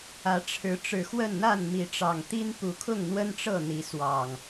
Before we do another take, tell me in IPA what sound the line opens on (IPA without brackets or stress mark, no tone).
ä